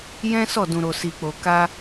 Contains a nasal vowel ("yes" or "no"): yes